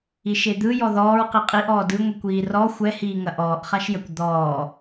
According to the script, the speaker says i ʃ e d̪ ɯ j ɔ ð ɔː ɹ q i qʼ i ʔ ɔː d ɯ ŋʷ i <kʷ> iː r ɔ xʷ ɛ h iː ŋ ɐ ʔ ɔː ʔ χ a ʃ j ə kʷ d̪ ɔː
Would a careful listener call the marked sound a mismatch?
no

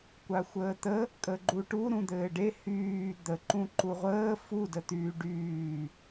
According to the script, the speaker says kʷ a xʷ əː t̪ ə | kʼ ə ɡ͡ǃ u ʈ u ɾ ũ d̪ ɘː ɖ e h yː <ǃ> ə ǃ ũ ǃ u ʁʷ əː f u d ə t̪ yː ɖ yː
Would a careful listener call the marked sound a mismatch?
yes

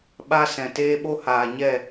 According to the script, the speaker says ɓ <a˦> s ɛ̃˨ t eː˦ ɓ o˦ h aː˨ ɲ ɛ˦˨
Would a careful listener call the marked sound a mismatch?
no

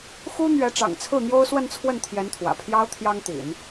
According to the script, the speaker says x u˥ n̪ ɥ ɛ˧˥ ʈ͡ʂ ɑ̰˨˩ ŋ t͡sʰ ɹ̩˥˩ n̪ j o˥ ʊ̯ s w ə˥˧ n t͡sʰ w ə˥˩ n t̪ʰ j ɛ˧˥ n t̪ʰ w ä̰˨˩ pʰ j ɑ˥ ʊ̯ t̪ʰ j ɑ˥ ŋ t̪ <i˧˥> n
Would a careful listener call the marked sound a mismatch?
yes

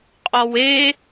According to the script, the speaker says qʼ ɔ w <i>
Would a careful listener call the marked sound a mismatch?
yes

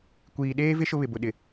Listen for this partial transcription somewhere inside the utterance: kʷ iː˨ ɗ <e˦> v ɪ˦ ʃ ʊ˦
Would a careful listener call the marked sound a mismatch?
yes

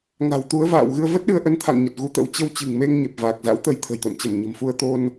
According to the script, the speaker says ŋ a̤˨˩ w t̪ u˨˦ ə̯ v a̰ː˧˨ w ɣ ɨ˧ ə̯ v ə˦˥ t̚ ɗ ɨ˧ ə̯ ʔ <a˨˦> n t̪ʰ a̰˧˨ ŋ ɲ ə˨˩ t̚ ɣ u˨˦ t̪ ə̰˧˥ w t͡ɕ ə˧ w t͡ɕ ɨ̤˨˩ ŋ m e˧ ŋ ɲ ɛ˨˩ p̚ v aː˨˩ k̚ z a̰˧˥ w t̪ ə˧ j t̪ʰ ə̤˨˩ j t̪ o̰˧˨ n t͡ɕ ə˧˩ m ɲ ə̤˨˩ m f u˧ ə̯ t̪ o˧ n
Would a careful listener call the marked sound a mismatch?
yes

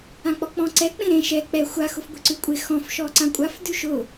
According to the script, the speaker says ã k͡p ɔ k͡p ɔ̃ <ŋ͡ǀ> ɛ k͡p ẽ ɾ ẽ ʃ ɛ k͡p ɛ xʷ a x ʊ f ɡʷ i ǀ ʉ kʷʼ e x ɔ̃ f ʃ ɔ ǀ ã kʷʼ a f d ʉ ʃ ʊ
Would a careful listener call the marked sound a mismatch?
yes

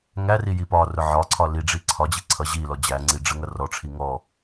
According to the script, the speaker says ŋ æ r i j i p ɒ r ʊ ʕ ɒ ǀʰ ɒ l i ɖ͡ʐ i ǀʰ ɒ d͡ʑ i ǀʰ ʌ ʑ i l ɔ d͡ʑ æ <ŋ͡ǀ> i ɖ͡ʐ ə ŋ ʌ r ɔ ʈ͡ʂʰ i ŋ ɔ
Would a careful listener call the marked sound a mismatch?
no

